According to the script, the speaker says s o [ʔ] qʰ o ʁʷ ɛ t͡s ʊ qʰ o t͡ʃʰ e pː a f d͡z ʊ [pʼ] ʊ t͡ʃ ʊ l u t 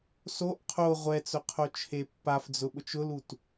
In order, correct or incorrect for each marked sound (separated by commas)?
correct, incorrect